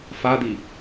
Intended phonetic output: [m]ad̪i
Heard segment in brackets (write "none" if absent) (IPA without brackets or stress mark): f